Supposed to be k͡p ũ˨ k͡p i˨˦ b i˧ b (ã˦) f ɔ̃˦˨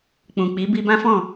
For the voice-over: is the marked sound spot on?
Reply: yes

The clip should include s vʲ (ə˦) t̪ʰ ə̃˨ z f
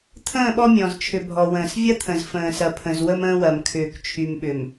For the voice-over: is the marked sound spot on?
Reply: no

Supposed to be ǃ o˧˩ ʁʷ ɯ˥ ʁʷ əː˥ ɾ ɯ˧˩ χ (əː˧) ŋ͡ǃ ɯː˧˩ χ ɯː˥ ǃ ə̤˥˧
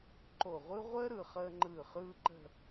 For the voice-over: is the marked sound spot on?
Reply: yes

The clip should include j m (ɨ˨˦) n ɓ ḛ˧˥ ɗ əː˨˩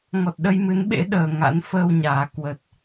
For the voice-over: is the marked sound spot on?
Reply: yes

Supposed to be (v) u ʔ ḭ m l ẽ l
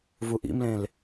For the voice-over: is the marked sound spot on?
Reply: yes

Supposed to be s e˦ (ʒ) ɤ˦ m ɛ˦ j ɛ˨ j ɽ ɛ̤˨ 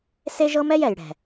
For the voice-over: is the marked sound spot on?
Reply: yes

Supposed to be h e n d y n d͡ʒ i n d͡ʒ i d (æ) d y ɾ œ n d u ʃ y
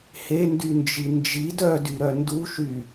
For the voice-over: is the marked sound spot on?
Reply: no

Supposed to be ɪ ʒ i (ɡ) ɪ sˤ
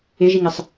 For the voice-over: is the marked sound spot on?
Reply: no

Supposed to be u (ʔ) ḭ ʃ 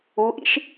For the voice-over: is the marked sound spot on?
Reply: yes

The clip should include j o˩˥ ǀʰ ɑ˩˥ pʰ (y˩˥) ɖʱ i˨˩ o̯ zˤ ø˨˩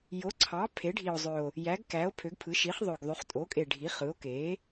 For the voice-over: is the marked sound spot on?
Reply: no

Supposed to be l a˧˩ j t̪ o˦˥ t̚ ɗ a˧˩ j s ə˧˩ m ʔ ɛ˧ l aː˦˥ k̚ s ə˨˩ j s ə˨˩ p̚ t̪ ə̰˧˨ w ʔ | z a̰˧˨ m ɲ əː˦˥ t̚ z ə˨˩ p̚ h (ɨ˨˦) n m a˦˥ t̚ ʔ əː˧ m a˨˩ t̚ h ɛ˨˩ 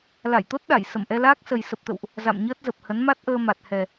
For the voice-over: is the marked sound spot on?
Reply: no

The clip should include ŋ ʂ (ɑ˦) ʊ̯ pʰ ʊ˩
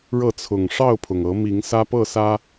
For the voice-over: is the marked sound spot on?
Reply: no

